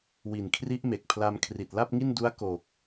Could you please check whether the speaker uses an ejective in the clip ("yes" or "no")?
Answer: no